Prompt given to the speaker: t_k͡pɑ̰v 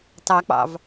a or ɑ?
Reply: ɑ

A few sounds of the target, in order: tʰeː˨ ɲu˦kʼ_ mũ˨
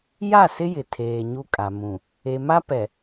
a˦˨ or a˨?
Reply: a˨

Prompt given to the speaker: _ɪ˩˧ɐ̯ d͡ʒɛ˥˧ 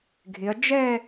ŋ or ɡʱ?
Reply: ɡʱ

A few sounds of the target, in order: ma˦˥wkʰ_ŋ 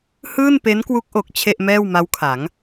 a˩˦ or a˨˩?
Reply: a˩˦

